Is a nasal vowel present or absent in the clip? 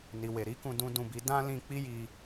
present